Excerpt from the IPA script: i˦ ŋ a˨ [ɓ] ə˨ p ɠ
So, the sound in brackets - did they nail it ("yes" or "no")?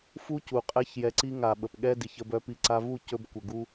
yes